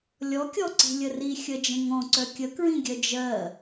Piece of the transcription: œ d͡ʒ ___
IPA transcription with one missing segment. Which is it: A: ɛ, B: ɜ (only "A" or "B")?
B